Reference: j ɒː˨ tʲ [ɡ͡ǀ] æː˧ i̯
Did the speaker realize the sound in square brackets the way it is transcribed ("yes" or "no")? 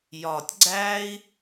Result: yes